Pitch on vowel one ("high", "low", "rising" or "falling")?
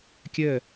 falling